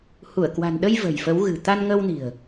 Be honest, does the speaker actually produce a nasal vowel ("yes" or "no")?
no